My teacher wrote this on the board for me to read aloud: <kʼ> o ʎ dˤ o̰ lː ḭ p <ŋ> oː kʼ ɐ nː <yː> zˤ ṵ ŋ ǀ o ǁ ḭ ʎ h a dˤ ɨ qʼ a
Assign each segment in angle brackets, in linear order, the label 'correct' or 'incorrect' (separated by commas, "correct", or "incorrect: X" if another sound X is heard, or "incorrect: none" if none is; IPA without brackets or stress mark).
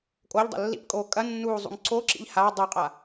correct, incorrect: kʼ, incorrect: uː